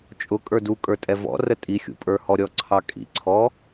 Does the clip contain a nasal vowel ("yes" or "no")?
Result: no